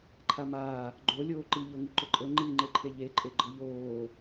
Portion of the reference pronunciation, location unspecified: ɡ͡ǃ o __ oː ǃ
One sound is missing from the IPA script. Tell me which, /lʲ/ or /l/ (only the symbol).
lʲ